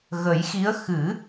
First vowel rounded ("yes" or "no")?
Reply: no